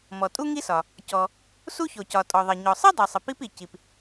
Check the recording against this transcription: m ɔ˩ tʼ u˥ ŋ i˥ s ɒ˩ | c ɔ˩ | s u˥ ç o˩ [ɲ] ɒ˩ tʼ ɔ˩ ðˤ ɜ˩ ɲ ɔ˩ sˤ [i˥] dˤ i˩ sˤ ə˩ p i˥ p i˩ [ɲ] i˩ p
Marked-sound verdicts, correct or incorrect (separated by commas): incorrect, correct, incorrect